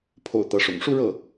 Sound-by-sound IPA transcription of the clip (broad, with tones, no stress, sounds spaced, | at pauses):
pʰ o̰˨˩ ʊ̯ t̪ ɤ˧˥ ʂ ʊ̰˨˩ ŋ ʂ u˥˧ ɻ ɤ˥˩